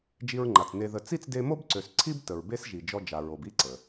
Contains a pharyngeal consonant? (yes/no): no